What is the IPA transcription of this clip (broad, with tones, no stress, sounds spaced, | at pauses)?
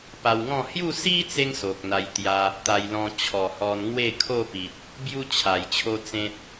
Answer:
p a˧ w ŋ ɔ̃˥˧ h j u˥˧ s i˦ t͡s e˧ ŋ s o˨ k̚ n̪ a˧ j t̪ j a˧ | t̪ a˧ j l ɔ̃˧ t͡ɕʰ ɔ˨˩ h ɔ˧ n ŋ w e˥˧ kʰ o˥˧ p i˨ t̚ | b j u˦ t͡ɕʰ a˨˩ j t͡ɕʰ o˦ t͡s ẽ˦ t̚